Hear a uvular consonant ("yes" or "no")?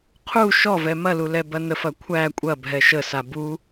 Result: yes